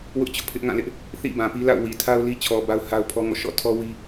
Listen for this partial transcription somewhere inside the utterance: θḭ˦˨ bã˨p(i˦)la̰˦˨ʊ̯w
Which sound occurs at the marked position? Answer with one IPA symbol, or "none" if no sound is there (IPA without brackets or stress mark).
i˦